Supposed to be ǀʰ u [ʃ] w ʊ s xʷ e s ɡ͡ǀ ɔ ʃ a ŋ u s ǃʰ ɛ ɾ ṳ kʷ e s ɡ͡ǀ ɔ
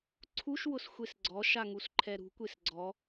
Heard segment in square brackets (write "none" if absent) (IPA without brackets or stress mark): ʃ